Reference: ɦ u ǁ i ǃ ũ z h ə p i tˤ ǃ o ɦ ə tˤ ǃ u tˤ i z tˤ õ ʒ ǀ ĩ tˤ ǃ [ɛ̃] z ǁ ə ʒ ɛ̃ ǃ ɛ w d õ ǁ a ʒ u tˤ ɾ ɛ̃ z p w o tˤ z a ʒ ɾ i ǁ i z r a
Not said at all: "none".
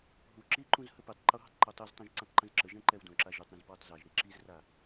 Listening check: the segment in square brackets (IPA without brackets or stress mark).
ə̃